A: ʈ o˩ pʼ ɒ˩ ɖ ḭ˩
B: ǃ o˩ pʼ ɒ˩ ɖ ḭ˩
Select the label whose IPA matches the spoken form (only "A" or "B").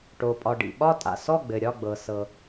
A